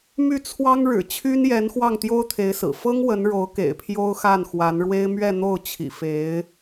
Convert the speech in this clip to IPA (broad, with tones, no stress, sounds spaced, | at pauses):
m y˥˩ t͡sʰ w ɑ˥ ŋ ɻ ɻ̩˨˩ t͡ɕʰ y˥ n j ɛ˧˥ n x w ɑ˥˩ ŋ t̪ j o˥ ʊ̯ t̪ʰ e˧˥ ɪ̯ s ɹ̩˨˩ f ɤ˥ ŋ w ə˧˥ n ɻ o˧˥ ʊ̯ k ḛ˨˩ ɪ̯ pʰ j o˥ ʊ̯ x a˥˩ n x w a˧˥ n ɻ w e˥ ɪ̯ m ɥ ɛ˥˧ n̪ o˥˩ ʊ̯ t͡ɕʰ ḭ˨˩ f e˧˥ ɪ̯